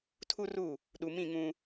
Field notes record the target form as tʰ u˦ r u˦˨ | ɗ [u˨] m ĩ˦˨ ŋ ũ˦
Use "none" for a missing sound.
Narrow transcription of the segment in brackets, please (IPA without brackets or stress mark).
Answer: u˨